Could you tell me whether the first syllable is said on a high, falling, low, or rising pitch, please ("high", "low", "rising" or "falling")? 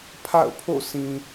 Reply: falling